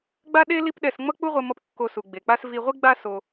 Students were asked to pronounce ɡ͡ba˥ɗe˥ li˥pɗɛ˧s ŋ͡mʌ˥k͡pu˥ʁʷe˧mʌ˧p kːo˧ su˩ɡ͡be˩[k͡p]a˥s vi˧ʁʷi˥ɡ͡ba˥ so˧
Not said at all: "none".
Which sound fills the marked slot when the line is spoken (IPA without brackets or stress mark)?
k͡p